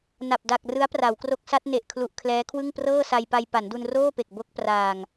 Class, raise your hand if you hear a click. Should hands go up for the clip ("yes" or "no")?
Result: no